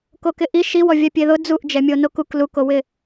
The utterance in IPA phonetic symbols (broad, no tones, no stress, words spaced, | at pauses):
kokɪʔi ʃiwɔ vʲapʲeðʊ d͡zuʔd͡ʒɛmʲo nokuk lukowɪ